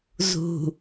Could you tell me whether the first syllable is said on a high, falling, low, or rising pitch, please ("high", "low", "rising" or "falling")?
low